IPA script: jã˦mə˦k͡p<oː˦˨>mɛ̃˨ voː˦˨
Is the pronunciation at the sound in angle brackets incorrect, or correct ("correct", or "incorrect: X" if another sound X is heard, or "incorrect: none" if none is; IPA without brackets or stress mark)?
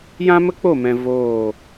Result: incorrect: o˦˨